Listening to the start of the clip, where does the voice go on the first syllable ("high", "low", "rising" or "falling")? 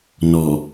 low